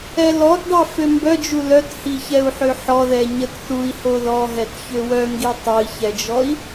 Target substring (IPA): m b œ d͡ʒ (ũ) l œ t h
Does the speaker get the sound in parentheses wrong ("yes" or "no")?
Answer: yes